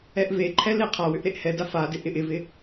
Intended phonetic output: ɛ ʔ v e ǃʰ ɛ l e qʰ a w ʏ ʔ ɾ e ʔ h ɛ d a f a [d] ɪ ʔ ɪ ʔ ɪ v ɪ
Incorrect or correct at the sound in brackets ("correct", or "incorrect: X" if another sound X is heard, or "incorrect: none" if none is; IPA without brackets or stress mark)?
correct